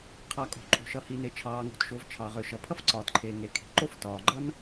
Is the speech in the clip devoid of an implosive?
yes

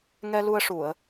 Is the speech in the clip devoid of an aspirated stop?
yes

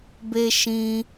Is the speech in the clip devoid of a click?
yes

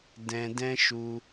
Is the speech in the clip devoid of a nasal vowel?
no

